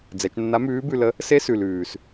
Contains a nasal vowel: no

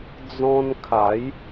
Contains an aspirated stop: yes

